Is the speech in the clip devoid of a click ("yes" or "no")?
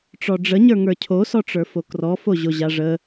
yes